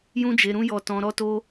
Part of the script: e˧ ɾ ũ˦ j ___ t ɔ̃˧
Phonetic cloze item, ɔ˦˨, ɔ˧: ɔ˧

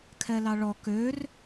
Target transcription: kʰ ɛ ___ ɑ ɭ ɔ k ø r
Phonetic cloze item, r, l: l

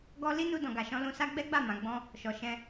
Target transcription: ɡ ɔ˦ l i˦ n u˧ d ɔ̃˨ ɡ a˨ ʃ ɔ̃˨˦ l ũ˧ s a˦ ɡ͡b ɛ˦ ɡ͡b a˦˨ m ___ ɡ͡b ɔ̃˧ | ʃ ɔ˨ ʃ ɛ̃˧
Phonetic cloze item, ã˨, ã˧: ã˨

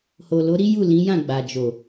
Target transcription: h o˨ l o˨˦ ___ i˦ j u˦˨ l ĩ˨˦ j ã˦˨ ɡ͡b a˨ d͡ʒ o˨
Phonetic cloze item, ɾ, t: ɾ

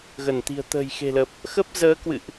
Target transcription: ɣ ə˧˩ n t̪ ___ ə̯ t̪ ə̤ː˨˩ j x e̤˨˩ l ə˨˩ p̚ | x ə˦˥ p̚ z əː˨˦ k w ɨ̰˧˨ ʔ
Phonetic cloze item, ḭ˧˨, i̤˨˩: i̤˨˩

